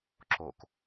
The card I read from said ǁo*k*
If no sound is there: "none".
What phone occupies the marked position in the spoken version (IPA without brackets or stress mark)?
k